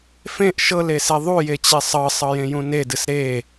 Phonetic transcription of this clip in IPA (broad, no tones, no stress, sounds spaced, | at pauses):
f ẽ ʔ ʃ ɤ l e s e ðˤ u j e t͡ɕ e sˤ ɤ sˤ ɤ j ẽ j ũ n e d ɨ s ɾ e